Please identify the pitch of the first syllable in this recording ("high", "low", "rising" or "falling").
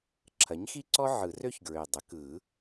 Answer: rising